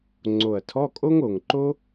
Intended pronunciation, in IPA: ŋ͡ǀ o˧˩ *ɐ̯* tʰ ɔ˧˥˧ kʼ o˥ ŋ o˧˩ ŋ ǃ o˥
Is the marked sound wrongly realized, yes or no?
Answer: no